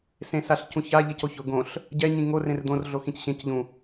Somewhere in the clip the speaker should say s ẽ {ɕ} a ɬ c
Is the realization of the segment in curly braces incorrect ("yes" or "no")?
yes